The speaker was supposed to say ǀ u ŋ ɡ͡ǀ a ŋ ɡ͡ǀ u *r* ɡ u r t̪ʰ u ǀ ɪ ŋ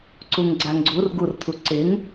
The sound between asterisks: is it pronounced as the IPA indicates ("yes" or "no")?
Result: yes